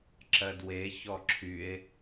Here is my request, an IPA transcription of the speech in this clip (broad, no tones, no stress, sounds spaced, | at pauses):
ǁ ɜ d w e ç ɔ ǁʰ y e̯